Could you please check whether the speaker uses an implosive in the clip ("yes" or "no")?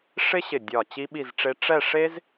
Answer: yes